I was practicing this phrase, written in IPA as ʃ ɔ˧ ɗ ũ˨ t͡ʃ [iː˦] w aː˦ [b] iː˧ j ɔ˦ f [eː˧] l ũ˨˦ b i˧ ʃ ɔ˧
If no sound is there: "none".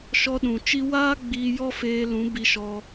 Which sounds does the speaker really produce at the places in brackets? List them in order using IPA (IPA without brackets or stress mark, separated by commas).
i˦, ɡ͡b, eː˧